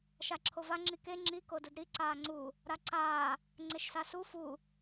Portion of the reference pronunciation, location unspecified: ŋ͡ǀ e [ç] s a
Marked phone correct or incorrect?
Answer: incorrect